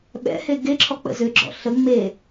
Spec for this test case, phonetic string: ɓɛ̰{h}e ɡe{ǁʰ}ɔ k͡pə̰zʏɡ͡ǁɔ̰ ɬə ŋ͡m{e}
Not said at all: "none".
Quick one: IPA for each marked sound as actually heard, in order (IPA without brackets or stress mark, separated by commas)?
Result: h, ǁʰ, e